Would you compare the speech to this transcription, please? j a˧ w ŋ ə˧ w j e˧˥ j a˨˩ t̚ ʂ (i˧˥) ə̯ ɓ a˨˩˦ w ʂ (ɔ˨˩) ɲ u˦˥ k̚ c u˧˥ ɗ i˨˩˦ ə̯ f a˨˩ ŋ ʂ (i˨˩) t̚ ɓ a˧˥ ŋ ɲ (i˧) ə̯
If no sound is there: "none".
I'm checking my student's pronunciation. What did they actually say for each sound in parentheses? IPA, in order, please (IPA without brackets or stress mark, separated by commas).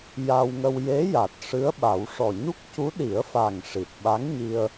ɨ˧˥, ɔ˨˩, i˨˩, i˧